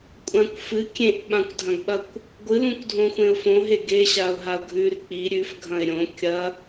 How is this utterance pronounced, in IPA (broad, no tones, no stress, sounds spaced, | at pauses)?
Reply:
kʷʼ ã kʷ f ɨ kʲ ẽ ʔ ɓ ã kʷ dʱ ɐ̃ ɡ ɓ ɐ kʷ | ɡʷ ɨ l ũ kʷ dʱ õ xʷ ẽ ʊ̯ f õ ɦ e ɡ e ɕ a ʊ̯ ɦ a ʊ̯ ɡʱ ʉ r k͡p i ɾʲ ʉ f ɡʱ ɐ̃ ɪ̯ ɾʲ õ kʲ ɐ